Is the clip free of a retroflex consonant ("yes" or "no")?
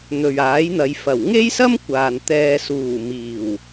yes